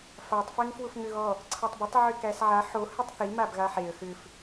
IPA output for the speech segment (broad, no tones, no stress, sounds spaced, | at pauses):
f a tˤ f ɛ ŋ f w ʊ f ŋ ʏ ɣ ɔ | ǀʰ a tˤ b ʏ tˤ ʕ ʏ k æ s ʕ a ħ o h ɨ tˤ θ i m a b ɣ a ħ e ə̯ x ʏ f